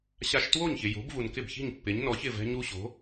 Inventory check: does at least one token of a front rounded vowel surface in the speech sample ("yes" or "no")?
no